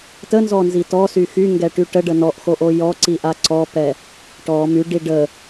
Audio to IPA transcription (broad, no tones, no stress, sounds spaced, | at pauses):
t ə n z ɔ n z i t ɔ s y x y ŋ ɡ ɛ ʈ y ʈ ə ɖ ə n ɔ ʔ x o ʔ o j ɔ ǀ i ʔ a ǀ ɔ p ɛ | ʈ ɔ m y ɖ i ɖ ə